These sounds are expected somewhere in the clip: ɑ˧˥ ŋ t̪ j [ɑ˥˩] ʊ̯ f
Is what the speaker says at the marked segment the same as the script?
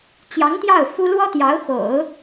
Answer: yes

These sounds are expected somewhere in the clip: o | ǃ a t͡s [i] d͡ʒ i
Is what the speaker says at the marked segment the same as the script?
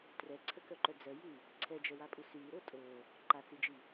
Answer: yes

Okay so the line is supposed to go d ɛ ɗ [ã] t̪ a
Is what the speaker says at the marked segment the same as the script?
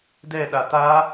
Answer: no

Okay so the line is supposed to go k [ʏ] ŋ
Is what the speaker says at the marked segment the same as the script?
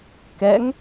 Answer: no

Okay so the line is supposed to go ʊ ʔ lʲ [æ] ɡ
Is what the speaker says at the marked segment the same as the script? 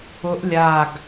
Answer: no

